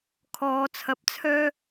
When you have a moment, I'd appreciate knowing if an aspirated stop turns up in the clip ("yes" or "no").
yes